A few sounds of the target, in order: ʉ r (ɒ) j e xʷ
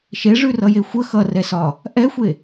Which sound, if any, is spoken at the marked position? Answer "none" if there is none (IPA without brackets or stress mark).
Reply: ʌ